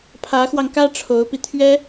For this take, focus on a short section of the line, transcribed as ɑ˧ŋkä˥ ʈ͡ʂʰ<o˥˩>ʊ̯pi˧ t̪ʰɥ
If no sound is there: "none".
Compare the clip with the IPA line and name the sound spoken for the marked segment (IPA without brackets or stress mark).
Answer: o˧˥